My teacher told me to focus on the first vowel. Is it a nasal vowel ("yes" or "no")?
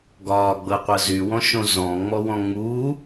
no